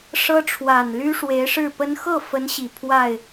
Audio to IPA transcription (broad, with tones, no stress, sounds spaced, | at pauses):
ʂ ɤ˥ ʈ͡ʂʰ w a˨˩ n l y˥ ʂ w e˧˥ ɪ̯ ʂ ɻ̩˥˩ p ə˥ n x ɤ˥˩ f ə˧˥ n ɕ i˨˩ pʰ w a˥˩ ɪ̯